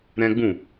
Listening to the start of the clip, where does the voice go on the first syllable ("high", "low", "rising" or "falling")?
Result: high